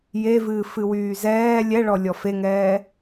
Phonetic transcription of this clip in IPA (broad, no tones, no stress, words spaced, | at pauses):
jevɨː fɨwyːzɛː lʲɛɭɔ lʲɔfeŋɛː